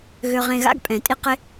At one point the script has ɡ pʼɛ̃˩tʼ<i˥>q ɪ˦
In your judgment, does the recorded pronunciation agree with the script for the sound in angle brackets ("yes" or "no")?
yes